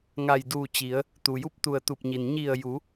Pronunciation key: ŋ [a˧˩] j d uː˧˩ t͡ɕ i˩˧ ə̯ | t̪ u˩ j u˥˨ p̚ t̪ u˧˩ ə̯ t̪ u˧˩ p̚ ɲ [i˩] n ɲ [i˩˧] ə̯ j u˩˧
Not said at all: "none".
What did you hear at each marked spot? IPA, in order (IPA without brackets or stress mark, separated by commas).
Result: a˧˩, i˩, i˧˩